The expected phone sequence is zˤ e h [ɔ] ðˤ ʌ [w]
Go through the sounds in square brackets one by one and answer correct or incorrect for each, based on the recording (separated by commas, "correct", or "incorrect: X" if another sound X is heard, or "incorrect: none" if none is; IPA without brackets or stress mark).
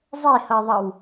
incorrect: ʌ, correct